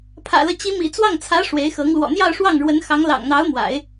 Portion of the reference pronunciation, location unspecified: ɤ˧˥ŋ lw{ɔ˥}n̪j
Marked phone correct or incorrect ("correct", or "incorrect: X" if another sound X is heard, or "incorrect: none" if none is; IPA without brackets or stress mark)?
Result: incorrect: ɔ̰˨˩